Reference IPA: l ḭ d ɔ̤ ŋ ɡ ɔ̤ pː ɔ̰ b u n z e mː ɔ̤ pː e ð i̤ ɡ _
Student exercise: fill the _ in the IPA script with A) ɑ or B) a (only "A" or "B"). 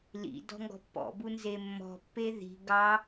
A